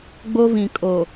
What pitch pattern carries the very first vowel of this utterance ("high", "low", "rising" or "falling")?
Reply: high